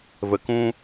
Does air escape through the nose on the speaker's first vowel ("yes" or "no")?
no